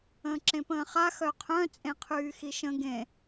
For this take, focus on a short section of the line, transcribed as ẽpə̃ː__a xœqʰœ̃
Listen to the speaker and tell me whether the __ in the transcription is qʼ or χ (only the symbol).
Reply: χ